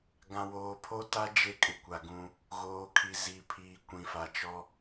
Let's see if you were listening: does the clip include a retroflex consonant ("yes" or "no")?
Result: no